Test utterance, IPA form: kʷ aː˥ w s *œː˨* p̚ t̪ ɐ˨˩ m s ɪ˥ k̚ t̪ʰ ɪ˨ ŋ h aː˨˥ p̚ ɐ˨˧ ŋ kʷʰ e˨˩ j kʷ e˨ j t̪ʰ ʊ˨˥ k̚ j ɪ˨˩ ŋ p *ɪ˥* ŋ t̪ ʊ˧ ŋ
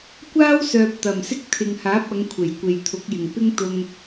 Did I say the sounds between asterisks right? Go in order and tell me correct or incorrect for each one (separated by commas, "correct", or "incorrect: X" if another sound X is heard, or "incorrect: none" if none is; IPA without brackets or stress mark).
correct, correct